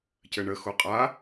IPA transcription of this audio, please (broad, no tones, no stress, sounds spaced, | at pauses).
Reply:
c ɘ ɳ ə x o qʼ a